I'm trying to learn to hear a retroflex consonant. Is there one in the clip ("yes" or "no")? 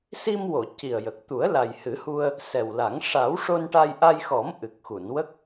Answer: yes